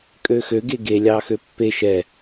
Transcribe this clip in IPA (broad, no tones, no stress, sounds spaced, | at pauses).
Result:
kʼ ø x ø ɡ e ɡ e lʲ ɑ x ø pː e ʃ ɛ